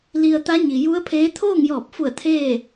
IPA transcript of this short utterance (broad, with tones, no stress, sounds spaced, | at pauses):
l i˧ ə̯ t̪ a˧˥ ɲ i˩ j u˧˥ ə̯ pʰ eː˧˥ t̪ʰ oː˥˨ ŋ j ɔː˧˩ p̚ f u˧˩ ə̯ t̪ʰ eː˥˨